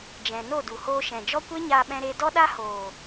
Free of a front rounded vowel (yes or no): yes